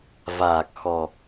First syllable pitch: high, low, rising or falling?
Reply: low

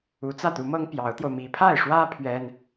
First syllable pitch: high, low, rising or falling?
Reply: rising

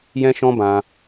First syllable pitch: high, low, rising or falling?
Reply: high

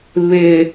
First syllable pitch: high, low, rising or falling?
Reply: low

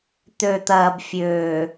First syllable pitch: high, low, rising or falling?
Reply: low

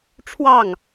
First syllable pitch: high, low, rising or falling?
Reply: falling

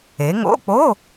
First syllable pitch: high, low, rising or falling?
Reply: rising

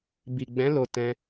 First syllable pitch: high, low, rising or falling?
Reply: low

